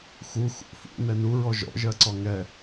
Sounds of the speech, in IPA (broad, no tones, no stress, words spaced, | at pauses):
xu xṵ fṵ nɛnuɹɔ ʒɔ̰ʒɜǀɔ ŋɛ